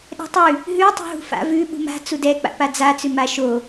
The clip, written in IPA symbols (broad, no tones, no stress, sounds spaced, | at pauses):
ɗ ɛ̤ tˤ ʉ | ɦ ʉ tˤ ṳ ɦ ṳ f a̰ v ʉ ɓ ṳ m a̤ t͡s u d ɛ k͡p a̰ p a d͡z a t͡s ʉ m a ʃ o